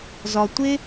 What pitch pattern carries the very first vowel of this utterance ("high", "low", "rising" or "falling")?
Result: low